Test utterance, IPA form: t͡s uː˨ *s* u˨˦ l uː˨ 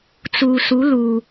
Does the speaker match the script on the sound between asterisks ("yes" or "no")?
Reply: yes